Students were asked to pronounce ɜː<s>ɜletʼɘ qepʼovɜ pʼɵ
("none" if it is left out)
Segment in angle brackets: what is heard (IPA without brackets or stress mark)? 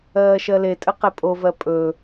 ʃ